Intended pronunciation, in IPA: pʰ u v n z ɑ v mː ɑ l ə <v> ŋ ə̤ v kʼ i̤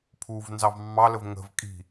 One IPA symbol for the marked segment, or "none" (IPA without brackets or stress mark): v